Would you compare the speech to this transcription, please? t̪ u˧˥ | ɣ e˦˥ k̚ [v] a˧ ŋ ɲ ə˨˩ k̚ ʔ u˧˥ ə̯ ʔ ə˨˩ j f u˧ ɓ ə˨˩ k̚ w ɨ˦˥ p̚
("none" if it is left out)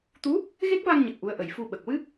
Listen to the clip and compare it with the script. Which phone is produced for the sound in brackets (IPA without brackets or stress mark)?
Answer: v